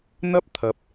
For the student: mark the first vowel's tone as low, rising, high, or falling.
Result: high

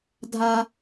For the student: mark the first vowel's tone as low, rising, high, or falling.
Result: high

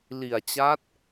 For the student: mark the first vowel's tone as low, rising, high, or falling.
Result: low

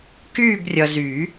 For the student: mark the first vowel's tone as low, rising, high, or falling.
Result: falling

